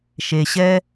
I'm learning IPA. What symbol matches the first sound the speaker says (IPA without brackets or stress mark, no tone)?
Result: ʃ